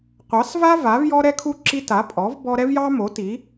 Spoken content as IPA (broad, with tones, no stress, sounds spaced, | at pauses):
qʷ ɑ˨˥ s v a˥ v a˨˥ v j ɔ˥ ɾ ɛ˥ kʰ u˥ ǁ i˥ t a˨˥ pʼ ɔ˨˥ v b ɔ˥ ɾ ɛ˥ v j ɑ˥ m o˨˥ t i˨˥